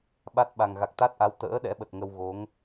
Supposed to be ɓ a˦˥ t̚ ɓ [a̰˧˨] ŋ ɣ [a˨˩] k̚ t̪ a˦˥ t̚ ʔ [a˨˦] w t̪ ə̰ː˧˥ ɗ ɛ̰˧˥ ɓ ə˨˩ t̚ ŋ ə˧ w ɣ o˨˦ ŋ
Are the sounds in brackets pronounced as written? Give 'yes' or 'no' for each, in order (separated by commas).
no, yes, yes